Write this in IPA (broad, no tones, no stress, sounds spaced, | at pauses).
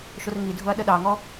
ʃ ʊ r ŋ i dʱ ʊ ɐ̯ ɗ ə ɗ ɑ ŋ ɔ